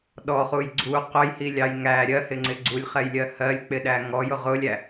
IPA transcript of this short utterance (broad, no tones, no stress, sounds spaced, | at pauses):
ɗ ɔ χ u j ɡ͡ǀ u q ʊ j h i lʲ ɑ j ŋ æ ɾʲ ɜ h ɪ ŋ͡ǀ ɪ ɡ͡ǀ u lʲ χ ɛ j lʲ ɜ h ɜ lʲ k͡p ɪ ɗ æ ŋ ɔ j ʊ ʁ ʊ lʲ æ